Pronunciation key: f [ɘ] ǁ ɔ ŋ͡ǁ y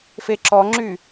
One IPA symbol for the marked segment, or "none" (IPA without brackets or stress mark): e